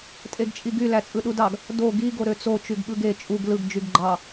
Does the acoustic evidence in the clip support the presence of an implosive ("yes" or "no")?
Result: yes